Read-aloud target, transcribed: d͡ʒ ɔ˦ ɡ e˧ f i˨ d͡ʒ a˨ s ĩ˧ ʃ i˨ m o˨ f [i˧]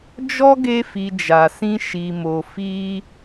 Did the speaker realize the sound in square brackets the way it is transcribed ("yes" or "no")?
yes